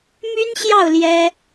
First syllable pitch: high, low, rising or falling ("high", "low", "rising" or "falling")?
high